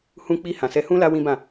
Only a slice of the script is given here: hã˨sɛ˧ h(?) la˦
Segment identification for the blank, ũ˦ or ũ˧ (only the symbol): ũ˦